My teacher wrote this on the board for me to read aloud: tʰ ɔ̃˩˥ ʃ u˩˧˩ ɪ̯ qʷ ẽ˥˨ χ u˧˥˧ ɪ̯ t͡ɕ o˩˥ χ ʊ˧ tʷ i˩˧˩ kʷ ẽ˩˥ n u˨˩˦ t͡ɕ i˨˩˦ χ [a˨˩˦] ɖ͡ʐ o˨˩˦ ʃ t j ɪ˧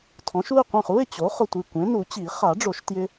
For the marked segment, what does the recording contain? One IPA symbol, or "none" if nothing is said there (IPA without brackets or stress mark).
a˨˩˦